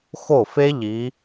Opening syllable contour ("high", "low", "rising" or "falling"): falling